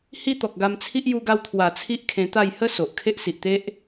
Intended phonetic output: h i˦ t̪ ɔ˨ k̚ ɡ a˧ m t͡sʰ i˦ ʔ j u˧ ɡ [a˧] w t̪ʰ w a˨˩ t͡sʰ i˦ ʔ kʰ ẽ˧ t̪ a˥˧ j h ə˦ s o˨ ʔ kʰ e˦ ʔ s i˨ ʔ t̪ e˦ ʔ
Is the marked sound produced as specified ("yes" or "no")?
yes